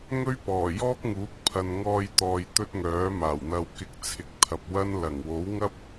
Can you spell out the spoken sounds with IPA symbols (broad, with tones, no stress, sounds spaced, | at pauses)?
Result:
ŋ ɵ˥ ɥ p ɔː˨˩ j ɔː˥ k̚ ŋ uː˨˥ k̚ pʰ ɐ˨ n ŋ ɔː˧ j t̪ ɔː˨ j t̪ ɵ˥ t̚ ŋ œː˨˥ m aː˨˩ w n̪ ɐ˧ w k ɪ˧ k̚ t͡sʰ ɪ˨˥ k̚ t̪ʰ ɐ˨ p̚ w ɐ˥ n l ɐ˨˩ ŋ w o˨˥ w ŋ ɐ˥ p̚